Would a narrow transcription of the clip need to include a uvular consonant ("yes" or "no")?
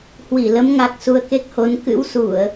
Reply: no